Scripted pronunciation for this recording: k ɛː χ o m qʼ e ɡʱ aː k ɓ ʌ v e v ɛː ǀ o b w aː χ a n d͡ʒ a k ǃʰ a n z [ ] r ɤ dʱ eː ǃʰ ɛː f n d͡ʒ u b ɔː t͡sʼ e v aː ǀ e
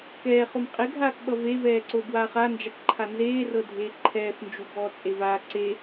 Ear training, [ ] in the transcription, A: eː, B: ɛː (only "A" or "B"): A